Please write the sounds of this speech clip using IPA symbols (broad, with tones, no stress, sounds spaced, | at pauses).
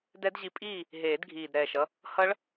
d ɛ˦˥ d ʑ i˧ pʼ iː˥˨ | ɦ eː˨˩˦ d ɡʱ iː˨˩ d ɾ ɛː˨˩ ʃ ʌ˧ | h ʌ˦˥ ɭ